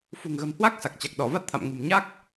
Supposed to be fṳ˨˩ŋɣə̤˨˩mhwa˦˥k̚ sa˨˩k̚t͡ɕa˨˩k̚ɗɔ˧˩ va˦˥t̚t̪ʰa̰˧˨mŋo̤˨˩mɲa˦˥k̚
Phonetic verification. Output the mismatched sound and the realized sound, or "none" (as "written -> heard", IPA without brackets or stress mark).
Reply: o̤˨˩ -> ṳ˨˩